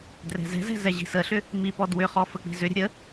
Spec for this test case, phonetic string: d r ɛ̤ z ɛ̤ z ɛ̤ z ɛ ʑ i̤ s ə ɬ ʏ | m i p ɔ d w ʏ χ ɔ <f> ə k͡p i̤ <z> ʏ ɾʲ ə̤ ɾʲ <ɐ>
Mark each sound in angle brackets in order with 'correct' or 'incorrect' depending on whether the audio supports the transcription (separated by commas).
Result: correct, correct, incorrect